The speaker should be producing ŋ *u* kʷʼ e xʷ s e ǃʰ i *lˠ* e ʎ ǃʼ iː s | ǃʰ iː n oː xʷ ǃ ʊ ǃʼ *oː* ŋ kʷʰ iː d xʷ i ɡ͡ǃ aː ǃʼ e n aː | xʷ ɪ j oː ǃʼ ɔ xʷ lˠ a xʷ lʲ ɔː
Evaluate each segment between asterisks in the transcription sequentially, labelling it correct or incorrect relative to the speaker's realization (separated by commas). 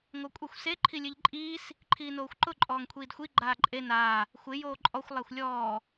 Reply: incorrect, incorrect, incorrect